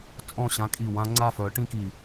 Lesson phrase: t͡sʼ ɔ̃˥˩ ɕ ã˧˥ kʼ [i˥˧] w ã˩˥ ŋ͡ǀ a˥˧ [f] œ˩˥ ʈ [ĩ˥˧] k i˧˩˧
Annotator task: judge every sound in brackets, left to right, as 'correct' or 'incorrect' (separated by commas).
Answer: incorrect, correct, correct